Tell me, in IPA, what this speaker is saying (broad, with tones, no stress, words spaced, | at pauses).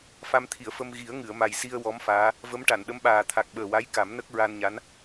fa˧mt̪ʰi˨˩˨ə̯fə˧m ɣi˨˩˦ə̯ŋɨ˨˩˨ə̯ma˨˩j si˧ə̯ wɔ˧˥mfaː˧˥ | və˧˥m ʈa˨˩˨nɗə˧˥mɓaː˨˩ t̪ʰa˨˩k̚ɓəː˨˩wa˧˥j ka˨˩˦mnə˦˥k̚ ɹa˧nɲa˧˥n